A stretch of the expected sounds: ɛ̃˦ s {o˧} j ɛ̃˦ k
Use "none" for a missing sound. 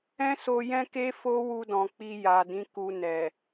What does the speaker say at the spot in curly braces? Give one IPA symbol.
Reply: o˧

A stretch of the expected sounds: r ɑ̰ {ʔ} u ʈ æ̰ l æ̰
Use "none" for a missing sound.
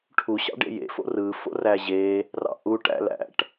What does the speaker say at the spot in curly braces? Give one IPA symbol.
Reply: ʔ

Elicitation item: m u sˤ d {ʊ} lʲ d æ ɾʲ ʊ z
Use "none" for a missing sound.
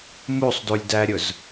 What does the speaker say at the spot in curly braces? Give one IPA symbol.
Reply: u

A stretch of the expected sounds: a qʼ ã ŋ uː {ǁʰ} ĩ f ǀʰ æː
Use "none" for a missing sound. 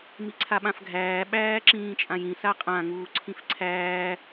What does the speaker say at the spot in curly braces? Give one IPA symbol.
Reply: ǀʰ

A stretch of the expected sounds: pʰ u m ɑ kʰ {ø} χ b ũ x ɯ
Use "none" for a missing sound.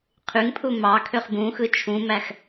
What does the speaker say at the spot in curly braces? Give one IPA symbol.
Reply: ø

